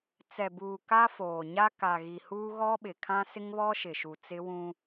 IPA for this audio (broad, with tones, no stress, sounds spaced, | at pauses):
t͡s ɛ˨ b uː˨ k a˦ f oː˨ ɲ a˦ k a˨ ɣ i˨ h uː˦ ɣ ɔ˦ ɓ ɪ˨ kʰ ã˦ s ɪ˦ ŋ β ɔ˦ ʃ ɪ˨ ʃ u˨ t͡s ɪ˦ w ũ˦